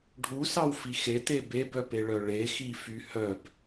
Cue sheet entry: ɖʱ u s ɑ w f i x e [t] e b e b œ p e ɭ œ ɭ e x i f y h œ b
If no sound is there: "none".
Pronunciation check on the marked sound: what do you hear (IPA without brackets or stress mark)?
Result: t